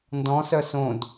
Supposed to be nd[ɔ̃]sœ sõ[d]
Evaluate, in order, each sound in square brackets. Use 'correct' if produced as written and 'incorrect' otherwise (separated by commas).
correct, correct